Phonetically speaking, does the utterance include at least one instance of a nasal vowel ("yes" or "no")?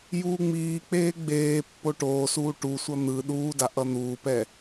no